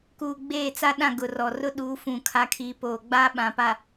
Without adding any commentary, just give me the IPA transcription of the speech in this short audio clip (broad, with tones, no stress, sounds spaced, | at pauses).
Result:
k uː˨ ɡ͡b eː˦˨ t͡s a˦ ɗ ã˦˨ ɡ ʊ˨ r ɔ˨ r ʊ˦ ɗ uː˨˦ f ũ˨ kʰ a˨ kʰ iː˨˦ p oː˨ ɡ͡b aː˦ ɓ ã˨ p a˨